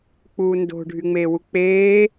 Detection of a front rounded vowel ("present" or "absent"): present